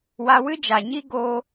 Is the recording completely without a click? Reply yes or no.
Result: yes